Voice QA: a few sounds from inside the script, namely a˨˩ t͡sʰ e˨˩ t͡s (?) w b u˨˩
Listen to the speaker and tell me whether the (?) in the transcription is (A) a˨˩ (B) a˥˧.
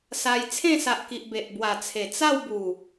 B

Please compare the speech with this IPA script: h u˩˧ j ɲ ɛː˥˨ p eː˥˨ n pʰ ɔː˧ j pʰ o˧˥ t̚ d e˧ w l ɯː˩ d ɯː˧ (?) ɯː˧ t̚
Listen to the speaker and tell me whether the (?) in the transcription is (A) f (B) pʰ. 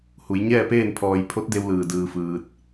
A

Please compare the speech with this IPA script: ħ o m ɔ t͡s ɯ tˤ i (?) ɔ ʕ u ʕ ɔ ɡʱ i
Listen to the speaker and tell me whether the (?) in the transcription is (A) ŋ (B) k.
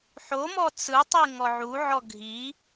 A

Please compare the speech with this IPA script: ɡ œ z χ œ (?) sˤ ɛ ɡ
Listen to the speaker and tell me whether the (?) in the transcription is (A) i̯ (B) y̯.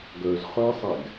A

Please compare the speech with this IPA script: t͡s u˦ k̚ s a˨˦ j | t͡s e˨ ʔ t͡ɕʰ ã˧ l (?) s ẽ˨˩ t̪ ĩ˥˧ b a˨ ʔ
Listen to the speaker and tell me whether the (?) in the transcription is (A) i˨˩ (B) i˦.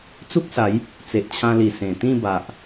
A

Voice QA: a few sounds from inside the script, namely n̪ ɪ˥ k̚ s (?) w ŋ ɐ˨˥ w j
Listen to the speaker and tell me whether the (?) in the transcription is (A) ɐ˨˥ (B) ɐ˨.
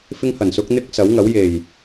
A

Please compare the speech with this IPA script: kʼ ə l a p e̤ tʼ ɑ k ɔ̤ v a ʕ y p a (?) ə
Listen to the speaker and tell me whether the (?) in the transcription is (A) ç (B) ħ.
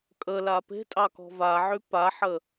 B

